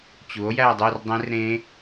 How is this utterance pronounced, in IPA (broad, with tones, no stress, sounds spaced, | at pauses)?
t͡ɕ u˨˥ o̯ j æ˥˧ dˤ y˥˧ r dˤ ẽ˦˥ r ɾ ẽ˦˥